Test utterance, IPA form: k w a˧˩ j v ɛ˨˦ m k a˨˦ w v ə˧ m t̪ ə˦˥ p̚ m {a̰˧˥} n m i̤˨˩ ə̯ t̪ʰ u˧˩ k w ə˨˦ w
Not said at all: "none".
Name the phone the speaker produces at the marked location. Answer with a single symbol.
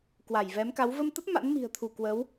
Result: a̰˧˥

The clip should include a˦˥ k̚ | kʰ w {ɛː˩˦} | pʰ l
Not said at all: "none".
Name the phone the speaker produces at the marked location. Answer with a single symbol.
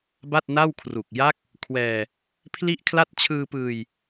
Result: ɛː˧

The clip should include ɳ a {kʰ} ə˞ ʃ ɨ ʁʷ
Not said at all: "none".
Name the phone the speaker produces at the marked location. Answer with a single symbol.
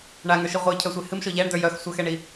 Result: ŋ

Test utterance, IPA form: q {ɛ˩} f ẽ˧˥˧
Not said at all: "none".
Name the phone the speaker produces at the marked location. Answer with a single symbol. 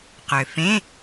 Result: ø˩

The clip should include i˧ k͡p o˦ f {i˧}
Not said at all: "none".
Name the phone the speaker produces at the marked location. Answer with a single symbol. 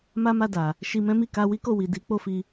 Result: i˧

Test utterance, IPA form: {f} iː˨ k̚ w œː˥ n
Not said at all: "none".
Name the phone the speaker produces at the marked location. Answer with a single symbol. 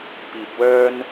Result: p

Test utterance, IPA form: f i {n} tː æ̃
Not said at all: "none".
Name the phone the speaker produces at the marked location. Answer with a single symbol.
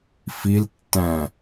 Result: l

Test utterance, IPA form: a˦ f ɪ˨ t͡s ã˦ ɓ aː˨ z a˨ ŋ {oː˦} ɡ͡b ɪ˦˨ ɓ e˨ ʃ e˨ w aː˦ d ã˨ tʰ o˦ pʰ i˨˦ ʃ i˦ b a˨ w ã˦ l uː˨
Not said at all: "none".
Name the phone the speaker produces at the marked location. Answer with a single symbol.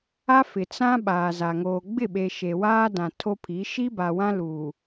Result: oː˨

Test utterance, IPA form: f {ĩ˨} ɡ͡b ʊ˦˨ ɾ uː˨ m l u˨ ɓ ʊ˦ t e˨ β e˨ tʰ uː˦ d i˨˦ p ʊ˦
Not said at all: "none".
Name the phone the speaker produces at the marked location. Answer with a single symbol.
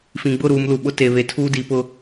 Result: ĩ˨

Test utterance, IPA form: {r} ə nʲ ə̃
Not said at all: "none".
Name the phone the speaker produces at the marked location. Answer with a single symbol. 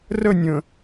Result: r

